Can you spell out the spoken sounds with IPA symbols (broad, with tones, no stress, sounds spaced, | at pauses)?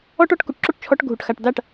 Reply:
ɔ˦ ʈ ɔ˦ ʈ k u˨ ʈ ǁ o˦ ʈ t͡ʃʰ ɔ˧ ʈ ɡʱ u˨ ʈ x a˨ ʈ d a˦˨ ʈ